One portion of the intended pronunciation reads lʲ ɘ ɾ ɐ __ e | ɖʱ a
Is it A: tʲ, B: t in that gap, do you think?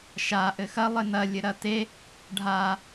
B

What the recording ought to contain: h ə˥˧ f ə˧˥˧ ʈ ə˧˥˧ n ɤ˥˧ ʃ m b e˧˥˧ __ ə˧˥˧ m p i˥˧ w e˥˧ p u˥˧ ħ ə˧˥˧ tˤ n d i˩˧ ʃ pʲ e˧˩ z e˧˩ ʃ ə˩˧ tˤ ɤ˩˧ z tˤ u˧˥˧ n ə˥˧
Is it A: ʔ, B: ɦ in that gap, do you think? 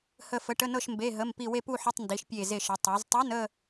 B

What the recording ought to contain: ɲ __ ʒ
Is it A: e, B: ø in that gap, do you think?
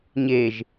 A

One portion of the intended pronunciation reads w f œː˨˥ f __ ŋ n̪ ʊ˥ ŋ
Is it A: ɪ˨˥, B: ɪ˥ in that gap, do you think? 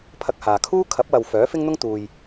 B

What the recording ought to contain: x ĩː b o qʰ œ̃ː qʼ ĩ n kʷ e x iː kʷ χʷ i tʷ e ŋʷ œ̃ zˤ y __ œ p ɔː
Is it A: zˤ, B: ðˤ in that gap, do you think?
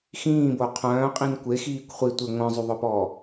B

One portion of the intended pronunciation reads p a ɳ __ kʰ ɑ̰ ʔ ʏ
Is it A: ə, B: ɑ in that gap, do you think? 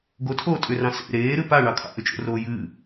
B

